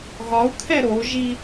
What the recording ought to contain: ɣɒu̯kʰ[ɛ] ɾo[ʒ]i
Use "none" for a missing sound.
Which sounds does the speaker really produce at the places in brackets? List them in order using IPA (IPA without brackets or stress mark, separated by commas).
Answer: ɛ, ʒ